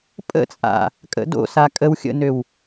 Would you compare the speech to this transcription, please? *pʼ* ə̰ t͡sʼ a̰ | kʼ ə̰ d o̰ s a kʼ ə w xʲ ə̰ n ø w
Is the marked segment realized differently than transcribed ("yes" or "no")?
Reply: no